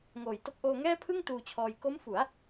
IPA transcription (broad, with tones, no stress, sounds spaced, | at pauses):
ŋ oː˨˩ j t o˦˥ k̚ ʔ oː˧ ŋ ɛː˥˩ pʰ ɯ˥˩ ŋ t uː˧ t͡ɕʰ ɔː˧ j k o˦˥ m f u˩˦ a̯